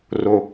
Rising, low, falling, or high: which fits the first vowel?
low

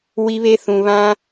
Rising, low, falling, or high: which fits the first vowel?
high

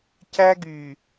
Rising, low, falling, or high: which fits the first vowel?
high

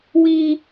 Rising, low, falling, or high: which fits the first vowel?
high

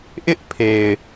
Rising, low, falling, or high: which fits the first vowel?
high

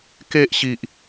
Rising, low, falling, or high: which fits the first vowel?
high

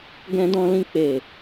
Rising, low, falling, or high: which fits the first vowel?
high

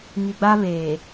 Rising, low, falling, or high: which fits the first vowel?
low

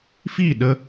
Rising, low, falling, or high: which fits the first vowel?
falling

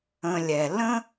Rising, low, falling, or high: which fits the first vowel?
low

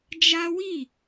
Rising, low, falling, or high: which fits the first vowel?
high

